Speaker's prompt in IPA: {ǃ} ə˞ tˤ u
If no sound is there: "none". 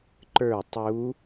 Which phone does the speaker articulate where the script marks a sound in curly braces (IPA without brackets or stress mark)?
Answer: ǃ